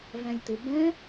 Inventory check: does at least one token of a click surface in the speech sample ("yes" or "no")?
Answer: no